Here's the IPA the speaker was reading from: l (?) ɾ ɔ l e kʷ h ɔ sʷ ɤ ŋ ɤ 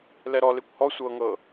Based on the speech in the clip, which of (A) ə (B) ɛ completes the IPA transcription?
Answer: B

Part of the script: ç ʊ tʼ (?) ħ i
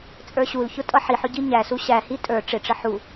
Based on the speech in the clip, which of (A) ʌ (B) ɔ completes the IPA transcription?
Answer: A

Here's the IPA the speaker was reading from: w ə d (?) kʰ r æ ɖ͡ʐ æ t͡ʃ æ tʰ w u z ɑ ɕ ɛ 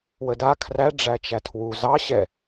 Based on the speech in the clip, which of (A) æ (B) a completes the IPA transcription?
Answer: B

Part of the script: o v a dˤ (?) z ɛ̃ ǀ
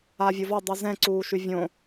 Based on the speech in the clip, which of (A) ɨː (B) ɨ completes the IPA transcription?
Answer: B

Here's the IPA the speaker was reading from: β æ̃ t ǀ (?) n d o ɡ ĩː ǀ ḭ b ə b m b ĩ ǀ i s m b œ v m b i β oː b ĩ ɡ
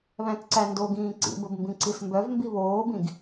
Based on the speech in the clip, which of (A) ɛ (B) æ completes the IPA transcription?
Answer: B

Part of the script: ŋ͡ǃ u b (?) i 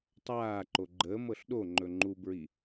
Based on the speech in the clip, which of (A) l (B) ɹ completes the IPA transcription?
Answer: B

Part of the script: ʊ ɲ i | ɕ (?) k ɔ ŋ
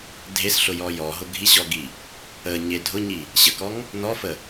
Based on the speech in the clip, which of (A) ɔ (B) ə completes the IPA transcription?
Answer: B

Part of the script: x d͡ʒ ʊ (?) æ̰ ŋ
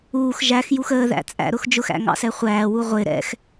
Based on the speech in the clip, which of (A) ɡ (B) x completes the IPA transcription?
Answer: B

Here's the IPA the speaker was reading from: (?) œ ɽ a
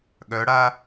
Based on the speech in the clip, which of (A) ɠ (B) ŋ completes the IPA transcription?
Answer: A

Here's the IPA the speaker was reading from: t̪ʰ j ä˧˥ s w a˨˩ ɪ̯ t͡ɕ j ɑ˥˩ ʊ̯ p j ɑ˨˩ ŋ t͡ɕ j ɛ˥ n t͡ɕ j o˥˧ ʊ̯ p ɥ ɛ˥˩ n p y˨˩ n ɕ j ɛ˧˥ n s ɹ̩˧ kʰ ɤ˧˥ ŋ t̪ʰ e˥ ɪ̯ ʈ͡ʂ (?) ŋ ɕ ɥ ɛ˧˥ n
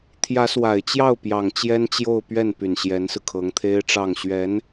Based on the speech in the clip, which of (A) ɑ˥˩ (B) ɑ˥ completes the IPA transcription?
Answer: A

